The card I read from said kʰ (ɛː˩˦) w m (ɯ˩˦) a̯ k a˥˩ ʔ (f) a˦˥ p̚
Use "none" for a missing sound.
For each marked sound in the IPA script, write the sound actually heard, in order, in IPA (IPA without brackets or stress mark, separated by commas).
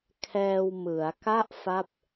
ɛː˧, ɯ˩˦, f